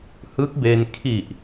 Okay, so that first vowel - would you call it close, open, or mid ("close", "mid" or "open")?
close